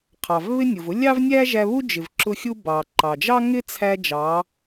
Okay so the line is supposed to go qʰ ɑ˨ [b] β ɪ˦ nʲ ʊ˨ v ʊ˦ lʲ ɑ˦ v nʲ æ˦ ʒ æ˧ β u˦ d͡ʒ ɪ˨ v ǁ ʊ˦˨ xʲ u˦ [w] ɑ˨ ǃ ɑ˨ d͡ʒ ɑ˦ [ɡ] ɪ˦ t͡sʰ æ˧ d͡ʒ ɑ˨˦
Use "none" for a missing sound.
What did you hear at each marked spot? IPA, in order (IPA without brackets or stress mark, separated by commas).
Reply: v, b, ŋ